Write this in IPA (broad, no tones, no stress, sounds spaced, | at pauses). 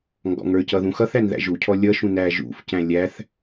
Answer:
ŋ ɡ ɔ̰ ŋ ə˞ c ʌ ð ũ x ʌ θ æ n ð æ̰ ʒ u cʰ ɔ lʲ ʌ ʃ ũ n æ ʒ ṵ f c æ̃ lʲ æ θ